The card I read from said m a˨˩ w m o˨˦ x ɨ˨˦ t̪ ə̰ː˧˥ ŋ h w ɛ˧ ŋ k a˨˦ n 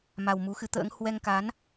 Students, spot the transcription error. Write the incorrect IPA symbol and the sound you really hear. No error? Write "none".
o˨˦ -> u˨˦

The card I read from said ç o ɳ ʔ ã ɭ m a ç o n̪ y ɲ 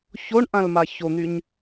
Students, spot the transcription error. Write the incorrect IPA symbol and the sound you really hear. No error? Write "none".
ɭ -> l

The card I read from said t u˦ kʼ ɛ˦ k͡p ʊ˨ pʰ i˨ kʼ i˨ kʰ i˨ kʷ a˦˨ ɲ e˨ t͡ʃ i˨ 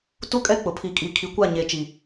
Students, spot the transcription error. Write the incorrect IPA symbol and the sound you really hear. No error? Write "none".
none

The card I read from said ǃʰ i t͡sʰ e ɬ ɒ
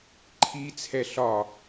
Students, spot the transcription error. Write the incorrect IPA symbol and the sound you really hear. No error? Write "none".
e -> ɛ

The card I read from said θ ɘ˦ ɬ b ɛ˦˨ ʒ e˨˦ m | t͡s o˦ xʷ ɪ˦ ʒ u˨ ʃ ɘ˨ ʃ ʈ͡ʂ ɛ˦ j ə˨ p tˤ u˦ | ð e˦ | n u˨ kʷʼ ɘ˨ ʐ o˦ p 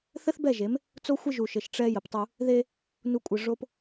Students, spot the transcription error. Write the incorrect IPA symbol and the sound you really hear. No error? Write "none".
ɬ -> θ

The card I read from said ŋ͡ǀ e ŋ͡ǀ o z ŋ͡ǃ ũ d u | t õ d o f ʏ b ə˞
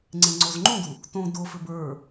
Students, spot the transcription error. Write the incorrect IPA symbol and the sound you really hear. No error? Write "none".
e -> ẽ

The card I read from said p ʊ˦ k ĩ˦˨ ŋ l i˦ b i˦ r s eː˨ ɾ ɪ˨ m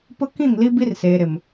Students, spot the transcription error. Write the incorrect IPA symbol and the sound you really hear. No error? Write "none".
none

